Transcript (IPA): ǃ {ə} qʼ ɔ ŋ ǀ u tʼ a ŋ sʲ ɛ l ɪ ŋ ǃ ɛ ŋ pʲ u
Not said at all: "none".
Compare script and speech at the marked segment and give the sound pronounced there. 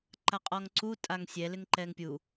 a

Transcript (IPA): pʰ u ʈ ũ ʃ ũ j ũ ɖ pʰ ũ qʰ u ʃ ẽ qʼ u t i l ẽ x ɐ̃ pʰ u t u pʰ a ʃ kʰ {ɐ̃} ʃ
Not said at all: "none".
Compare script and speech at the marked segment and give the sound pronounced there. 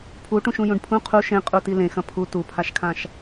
ã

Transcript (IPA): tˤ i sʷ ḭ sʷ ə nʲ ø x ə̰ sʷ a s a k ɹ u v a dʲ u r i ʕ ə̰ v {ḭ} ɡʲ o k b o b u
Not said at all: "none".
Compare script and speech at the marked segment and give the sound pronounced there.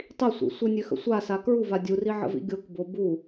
ḭ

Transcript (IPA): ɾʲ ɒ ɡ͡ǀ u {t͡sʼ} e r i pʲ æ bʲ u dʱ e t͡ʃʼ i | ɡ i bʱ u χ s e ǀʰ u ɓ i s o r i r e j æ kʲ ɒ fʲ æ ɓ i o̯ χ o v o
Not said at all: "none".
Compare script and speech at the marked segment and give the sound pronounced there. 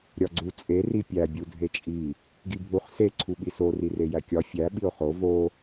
t͡sʼ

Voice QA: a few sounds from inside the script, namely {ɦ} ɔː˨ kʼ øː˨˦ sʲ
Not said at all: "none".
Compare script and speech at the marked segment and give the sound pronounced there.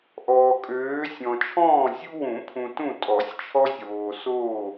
ʔ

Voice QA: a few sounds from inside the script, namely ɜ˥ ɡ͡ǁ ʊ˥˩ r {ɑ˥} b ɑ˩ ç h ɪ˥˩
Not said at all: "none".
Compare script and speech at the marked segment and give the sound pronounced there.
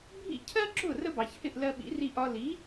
ə˥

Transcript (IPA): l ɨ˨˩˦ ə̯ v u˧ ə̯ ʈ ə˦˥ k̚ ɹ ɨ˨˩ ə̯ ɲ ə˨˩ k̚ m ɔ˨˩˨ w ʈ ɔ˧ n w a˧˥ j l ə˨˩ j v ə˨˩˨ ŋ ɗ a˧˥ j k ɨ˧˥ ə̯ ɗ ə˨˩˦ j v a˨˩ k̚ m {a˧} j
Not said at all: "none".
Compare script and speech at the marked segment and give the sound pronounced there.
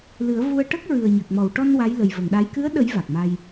a˧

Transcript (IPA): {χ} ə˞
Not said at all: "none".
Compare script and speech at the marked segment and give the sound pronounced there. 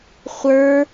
χʷ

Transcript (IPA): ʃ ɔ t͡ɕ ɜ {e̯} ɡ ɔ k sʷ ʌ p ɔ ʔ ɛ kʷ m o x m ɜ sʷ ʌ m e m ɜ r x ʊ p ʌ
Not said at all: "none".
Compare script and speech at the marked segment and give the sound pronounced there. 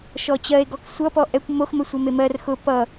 e̯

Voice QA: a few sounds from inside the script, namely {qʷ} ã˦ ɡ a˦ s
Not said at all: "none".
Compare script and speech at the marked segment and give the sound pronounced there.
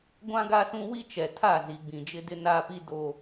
ɡʷ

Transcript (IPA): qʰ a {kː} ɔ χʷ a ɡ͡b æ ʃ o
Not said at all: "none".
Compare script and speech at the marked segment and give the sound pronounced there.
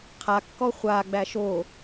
kː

